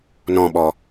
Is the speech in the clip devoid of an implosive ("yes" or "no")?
no